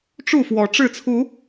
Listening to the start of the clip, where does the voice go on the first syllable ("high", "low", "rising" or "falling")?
falling